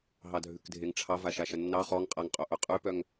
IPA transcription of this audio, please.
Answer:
ɦ ɑ dʱ ʉ k dʱ e ŋ ʈ͡ʂʰ ɑ v a ʃ a ʃ ɐ nː ɑ χ ɔ ŋ qʼ a ŋ qʼ o ʔ œ qʼ ʉ p œ ŋ

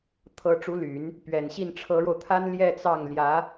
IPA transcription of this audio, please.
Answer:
t̪ʰ ɤ˧˥ ʈ͡ʂ u˧˥ l y˨˩˦ n | p ɥ ɛ˨˩ n ɕ i˥˩ n ʈ͡ʂʰ ɤ˧˥ ɻ o˧ ʊ̯ t̪ʰ a˥ n l j ɛ˥˧ t͡s ɑ˥˩ ŋ l j ä˧˥

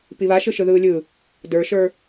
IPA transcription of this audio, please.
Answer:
p i β a ʃ ɯ ʃ ɯ ð ɯː lʲ ɯ | d ə˞ ʃ ə˞

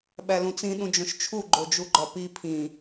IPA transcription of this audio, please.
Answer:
ɓ æ l ũ t͡s ĩ ɗ ũ d͡ʒ õ ʃ t͡ʃʰ u ɡ͡ǃ o d͡ʒ u ɡ͡ǃ ɒ p i pʰ ĩ

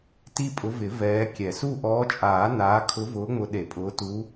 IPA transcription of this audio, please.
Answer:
t i˦˨ pʼ ʊ˨˦ v ɪ˨˩˦ v ɛː˨˦ kʲ ɛ˨˩˦ s u˦˨ ʔ ɔː˨˦ t͡ʃʼ aː˨˩˦ n aː˨˦ kʰ ʊ˨˦ v ʊː˨˦ ŋ͡m ʊ˨˦ ɗ e˨˩˦ pʼ ʊː˨˦ t u˨˦

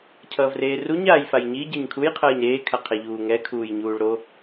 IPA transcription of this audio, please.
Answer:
cʰ ʌː v r eː r u ɲ aː j f a j ɲ i ɟ ɛ ɲ kʰ u j qʰ ʌː ɲ ɾ eː kʰ a qʰ ɛ ʎ uː ŋ ɛ kʰ uː j ɲ uː ɭ ɾ o

